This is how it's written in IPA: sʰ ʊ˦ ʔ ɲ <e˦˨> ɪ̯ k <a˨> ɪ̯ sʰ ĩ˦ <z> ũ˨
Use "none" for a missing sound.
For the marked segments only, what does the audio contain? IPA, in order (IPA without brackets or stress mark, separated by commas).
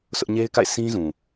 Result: e˦, a̰˦˨, z